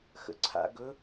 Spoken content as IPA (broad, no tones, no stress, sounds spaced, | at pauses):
x ə̰ ǀʰ a̰ ɡ ɵ